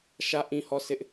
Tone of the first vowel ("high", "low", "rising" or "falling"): falling